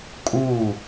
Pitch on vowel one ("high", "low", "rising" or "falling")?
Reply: falling